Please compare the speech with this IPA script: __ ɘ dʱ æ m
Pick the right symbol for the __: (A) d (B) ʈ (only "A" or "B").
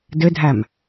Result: A